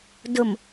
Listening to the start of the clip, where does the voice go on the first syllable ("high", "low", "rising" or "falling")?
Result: low